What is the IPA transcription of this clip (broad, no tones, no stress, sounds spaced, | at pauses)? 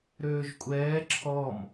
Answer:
ɾ øː ʒ kʷʼ ɛː ǁʰ ɔ m